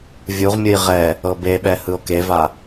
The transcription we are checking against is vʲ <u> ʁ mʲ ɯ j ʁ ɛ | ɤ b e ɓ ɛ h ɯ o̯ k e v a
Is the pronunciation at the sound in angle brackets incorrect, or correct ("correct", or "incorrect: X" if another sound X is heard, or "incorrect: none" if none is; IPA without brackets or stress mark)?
correct